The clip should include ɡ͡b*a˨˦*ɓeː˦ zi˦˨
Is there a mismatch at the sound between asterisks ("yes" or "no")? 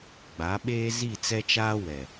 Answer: no